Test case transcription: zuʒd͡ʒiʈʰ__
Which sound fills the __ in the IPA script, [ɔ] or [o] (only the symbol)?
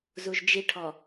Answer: ɔ